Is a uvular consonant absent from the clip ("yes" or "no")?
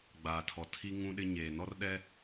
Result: yes